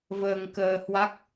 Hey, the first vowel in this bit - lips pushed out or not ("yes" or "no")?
no